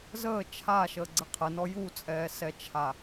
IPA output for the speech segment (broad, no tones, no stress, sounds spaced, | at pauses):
z əː t͡ʃʰ a ʃ əː ɡ͡ǀ ə qʰ ə n ɔ j u t͡sʼ ɛː s ɛ t͡ʃʰ a